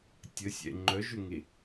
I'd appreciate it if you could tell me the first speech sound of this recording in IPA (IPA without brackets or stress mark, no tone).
tʲ